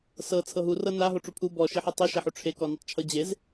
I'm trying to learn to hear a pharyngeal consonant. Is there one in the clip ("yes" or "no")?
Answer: yes